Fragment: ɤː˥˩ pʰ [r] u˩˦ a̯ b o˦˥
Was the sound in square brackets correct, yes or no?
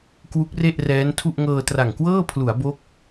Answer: no